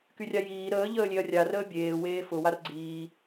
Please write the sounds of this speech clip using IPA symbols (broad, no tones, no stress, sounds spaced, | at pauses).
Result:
k y rʲ a j iː ɾ əː ʎ əː lʲ e ɐ̯ rʲ a r əː bʲ eː w eː f ʊ w a r ɡ͡ǀ iː